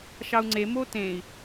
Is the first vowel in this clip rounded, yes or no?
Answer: no